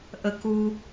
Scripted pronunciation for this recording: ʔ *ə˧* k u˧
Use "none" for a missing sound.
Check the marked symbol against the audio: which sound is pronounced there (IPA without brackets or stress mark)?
ə˧